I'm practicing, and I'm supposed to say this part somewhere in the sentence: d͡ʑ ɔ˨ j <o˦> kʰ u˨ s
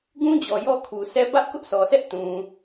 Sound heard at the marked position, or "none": ɔ˦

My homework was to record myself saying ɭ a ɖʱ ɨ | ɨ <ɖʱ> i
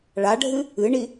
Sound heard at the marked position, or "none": ɳ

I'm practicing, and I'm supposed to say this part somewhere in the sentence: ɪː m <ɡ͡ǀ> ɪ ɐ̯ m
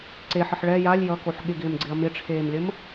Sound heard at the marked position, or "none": ɡ͡ǀ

